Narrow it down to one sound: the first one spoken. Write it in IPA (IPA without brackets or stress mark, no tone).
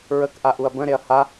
ɹ